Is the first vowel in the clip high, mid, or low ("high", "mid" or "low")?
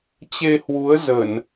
mid